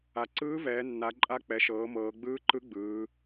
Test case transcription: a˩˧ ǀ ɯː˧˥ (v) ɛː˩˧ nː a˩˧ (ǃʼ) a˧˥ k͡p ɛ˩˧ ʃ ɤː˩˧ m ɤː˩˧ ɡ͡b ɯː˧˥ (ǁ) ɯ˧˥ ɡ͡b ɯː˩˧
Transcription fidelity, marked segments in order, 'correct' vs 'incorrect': correct, correct, incorrect

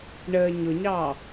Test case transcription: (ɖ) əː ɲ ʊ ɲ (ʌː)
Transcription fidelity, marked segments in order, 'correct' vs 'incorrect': incorrect, incorrect

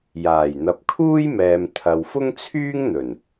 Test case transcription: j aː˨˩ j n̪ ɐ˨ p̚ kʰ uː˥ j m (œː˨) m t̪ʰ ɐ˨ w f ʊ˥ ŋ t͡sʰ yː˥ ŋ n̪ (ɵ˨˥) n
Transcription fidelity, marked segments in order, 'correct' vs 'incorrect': incorrect, incorrect

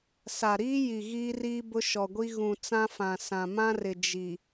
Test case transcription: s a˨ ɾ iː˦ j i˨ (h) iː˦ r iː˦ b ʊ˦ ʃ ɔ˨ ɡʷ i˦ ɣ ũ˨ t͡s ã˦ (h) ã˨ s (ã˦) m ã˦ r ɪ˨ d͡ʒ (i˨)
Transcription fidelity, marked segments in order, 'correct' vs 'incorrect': incorrect, incorrect, incorrect, correct

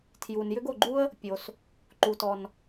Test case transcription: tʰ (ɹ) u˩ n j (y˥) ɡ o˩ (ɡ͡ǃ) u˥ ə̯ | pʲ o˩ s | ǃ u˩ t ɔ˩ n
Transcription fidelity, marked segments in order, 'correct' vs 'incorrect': incorrect, incorrect, correct

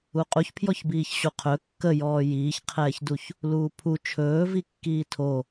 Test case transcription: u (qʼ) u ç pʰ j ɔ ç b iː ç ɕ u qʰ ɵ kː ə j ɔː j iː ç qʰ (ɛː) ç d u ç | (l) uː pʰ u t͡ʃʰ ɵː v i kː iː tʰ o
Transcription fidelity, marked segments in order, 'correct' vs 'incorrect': correct, correct, correct

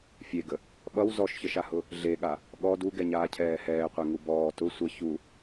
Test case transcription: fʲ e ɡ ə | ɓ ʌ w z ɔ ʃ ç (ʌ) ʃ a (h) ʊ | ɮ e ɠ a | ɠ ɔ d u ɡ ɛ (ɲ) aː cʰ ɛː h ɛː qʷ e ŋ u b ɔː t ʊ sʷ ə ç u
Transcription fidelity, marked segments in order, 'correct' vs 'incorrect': incorrect, correct, correct

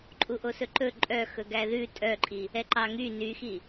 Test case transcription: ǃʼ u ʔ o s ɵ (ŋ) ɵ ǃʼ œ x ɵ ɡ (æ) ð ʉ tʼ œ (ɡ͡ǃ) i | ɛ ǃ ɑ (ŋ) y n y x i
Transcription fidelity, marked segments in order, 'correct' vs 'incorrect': incorrect, correct, incorrect, correct

